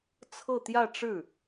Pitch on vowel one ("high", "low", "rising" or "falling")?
falling